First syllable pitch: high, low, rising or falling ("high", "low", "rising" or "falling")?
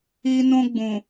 high